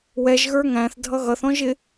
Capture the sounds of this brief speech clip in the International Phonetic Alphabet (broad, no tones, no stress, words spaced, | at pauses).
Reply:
wɛʒ ɣə˞ŋæ̃θ dʱʌɣʌθ ɔ̃ʒɪ